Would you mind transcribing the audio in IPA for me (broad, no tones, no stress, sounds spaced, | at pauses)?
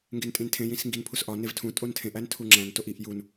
ŋ ɡ e n tʼ ĩ n tʰ ẽ j ĩ s ŋ ɡ i n pʰ u s ʔ ɒ n e v tʰ ũ tʼ o n tʰ ẽ ʔ æ n tʰ u ŋ͡ǁ æ̃ n t o ʔ i ʔ j u n